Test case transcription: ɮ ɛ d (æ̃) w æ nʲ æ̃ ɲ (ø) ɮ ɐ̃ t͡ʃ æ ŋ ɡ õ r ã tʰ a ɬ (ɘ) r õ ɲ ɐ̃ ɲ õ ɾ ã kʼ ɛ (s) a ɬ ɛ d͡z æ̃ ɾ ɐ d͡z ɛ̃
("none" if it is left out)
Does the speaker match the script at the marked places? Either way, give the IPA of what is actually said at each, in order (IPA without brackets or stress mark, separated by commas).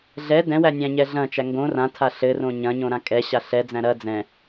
ɛ̃, ɛ, ɘ, ɕ